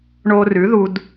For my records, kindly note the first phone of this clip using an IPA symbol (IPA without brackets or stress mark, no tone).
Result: ɳ